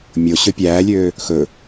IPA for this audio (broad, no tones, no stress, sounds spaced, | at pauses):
mʲ o ɕ ɵ pʲ æː lʲ øː | x ɵ